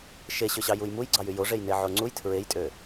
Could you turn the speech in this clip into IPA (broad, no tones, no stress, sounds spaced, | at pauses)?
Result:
ʃ e ɕ ø ɕ ɑ j u j m u j ɡ͡ǀ ɑ j y j o ʐ e j n e ʕ o ŋ͡ǀ u j tʰ ɹ e j tʼ ø